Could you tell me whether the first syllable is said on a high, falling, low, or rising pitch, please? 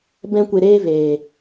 high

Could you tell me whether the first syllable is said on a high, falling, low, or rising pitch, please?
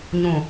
low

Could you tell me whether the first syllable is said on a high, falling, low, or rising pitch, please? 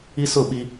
high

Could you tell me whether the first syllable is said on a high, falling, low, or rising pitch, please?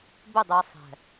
falling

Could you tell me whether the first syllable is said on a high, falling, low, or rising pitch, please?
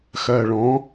low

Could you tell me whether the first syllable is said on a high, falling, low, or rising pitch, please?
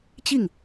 falling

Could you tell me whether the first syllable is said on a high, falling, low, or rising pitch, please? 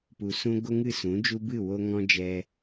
low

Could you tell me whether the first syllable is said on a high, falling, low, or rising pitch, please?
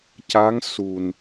rising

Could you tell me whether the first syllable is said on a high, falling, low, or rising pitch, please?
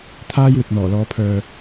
high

